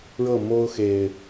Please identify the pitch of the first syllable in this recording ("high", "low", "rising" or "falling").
falling